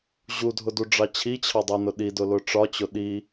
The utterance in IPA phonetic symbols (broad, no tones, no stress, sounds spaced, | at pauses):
ʑ u dʱ ʊ d u ɖ͡ʐ ɑ t͡ɕʰ i t͡ɕʰ ɑ dˤ u n ʊ ɗ i d ʊ l ʊ ʈ͡ʂ ɒ t͡ɕ ʊ ɗ i